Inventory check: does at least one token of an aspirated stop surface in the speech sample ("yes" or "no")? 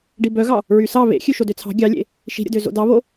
yes